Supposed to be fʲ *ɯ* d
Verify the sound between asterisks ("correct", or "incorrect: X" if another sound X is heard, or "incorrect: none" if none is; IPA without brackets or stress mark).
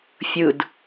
correct